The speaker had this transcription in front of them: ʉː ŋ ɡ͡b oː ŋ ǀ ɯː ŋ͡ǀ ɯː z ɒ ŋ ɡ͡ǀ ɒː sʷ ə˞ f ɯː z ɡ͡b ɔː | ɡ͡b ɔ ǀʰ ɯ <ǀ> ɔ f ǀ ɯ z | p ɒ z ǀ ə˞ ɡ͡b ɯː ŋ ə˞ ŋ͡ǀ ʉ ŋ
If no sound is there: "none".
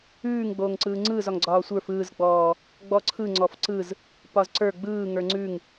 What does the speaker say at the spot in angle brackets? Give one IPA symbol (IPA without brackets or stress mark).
ŋ͡ǀ